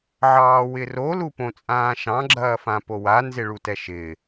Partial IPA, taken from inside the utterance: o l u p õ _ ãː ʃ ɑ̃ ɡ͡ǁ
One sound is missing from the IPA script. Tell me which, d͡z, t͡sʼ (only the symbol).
t͡sʼ